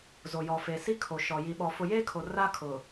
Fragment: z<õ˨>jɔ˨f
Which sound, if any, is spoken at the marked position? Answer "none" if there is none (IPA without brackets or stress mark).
o˨